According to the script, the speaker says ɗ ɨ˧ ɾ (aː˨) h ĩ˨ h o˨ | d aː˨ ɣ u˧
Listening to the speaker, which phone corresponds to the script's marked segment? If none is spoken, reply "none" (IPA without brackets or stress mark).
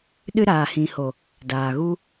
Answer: aː˨